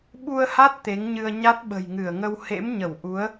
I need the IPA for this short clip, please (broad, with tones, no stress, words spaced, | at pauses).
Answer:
ɓu˧ə̯ha˦˥t̚ t̪e˨˦ŋɲɨ˧ə̯ ɲa˦˥t̚ɓə̤˨˩jŋɨ˧˩ə̯ŋə˧w hḛ˧˥mɲə˧˩w ʔu˨˦ə̯